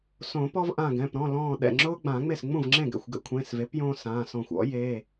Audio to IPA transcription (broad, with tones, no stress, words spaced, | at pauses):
sõ˨˩˦ pɔ˦vʔã˧˩ɡɛ̃˩˧˩p ɾɔ̃˩˧˩lɔ̃ː˧˩ ɗɛ̰˧˩ŋ͡ǁʊː˦ ɡ͡bã˨˩˦ŋ͡me˥˩s ŋ͡mũ˥˩vŋ͡ǁẽ˥˩ɡɛ̰˧˩xʷɡɛ̰˦ kʷʰẽ˩˧˩sve˩˥p jõː˦sãː˩˧˩sɔ̃˧˩xʷ ɔ̰˩˥ je˩˧˩